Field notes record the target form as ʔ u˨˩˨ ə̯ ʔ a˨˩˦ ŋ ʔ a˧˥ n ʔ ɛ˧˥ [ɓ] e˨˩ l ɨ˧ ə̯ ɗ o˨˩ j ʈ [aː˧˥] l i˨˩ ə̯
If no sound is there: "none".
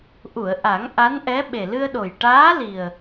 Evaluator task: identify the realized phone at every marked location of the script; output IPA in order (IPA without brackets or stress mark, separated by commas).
ɓ, aː˧˥